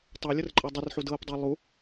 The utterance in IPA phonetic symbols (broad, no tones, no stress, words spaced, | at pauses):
tˤɤlʲər ǃʼɤdˤərħu dɤpdˤe lˠu